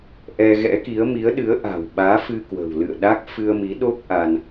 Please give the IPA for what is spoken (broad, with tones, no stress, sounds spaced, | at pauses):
ʔ ɛ˧ ɣ ɛ̰˧˥ k i˨˦ ə̯ m i˨˦ ə̯ ɗ ɨ˨˦ ə̯ ʔ a̤˨˩ w ɓ aː˨˦ f ɨ˧ k w ə̤˨˩ w l ɨ̰˧˨ ə̯ ɗ a˦˥ k̚ f ɨ˧ ə̯ m i˨˦ ɗ o˦˥ k̚ ʔ a˧ n